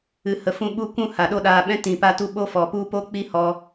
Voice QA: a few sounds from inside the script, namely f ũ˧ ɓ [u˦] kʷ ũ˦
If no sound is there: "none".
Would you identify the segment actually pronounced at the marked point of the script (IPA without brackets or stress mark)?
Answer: u˦